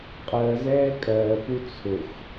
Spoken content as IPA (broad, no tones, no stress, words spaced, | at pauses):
qʼɜzɛː kʼɜːpu t͡sʰʊx